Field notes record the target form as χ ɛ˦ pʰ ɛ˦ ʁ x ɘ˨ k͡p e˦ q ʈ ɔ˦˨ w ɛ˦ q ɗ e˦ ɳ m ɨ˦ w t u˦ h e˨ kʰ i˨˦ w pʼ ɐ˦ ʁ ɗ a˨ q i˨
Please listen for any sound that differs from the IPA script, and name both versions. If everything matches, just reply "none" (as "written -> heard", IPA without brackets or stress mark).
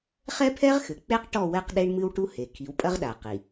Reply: t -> ʈ